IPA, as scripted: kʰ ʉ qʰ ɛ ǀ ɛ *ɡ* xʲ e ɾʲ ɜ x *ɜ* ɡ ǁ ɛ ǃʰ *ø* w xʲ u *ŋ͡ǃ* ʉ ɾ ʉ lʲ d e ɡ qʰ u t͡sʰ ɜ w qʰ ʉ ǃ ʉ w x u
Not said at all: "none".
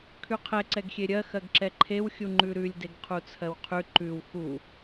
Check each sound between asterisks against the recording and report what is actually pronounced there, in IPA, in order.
ɡ, ɜ, e, ŋ͡ǃ

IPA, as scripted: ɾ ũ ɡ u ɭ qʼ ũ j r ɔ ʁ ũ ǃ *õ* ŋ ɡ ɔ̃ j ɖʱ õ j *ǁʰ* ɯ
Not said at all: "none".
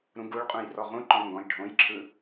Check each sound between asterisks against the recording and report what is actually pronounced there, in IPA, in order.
ɔ̃, ǁʰ

